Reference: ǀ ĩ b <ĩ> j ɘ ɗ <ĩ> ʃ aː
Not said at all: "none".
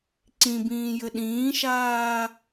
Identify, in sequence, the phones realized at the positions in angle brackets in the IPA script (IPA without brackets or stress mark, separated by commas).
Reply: ĩː, ĩː